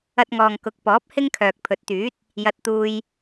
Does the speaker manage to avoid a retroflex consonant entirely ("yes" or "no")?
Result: yes